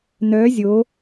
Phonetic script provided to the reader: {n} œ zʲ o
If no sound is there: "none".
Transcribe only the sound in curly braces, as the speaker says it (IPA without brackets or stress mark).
n